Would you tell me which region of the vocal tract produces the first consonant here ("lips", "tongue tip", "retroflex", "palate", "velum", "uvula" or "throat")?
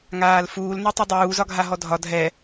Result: velum